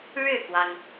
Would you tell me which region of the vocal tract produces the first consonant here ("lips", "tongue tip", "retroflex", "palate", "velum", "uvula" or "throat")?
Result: retroflex